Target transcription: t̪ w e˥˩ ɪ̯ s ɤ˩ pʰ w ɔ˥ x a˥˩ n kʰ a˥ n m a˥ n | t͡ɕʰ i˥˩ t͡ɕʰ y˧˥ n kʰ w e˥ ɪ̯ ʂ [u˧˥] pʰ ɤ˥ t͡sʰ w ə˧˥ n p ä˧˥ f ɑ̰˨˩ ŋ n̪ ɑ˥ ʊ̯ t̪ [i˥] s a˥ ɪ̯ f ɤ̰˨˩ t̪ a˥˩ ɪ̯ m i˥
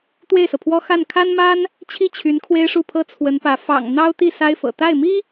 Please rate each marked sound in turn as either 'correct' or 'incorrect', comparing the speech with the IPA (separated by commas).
incorrect, incorrect